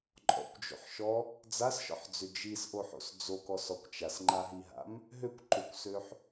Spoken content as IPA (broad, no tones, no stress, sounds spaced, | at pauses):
ǃʼ ɔ̰ kʷ d͡ʒ o̰ ħ ʃ ɔ | d͡z a s ʃ ɔ̰ ħ d͡z ʏ d͡ʒ i s ʔ o ħ o̰ s d͡z o k ɔ s ɔ kʷ t͡ʃ a s ŋ͡ǃ a ɦ i ɦ a̰ m | ɦ ø kʷ ǃ ʏ kʷ s ø ħ